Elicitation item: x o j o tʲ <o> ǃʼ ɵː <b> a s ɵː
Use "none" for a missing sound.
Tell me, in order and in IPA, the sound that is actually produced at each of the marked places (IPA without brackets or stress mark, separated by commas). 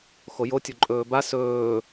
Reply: o, b